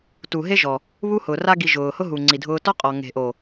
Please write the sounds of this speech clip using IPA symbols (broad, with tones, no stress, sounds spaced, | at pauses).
t u˨ ɦ e˦ ʒ ɔ˨ | β u˦ h ʊː˨ r a˦ ɡ i˨ ʒ ʊː˨ h ʊ˦ ɦ u˨ ŋ͡ǀ i˨ dʱ ʊː˧ t ɔ˦ qʼ ɔ˨ ŋ e̤˨ ʔ o˨